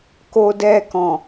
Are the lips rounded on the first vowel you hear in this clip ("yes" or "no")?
yes